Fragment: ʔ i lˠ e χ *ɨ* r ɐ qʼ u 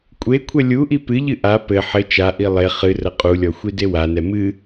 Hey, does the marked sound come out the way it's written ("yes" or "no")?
yes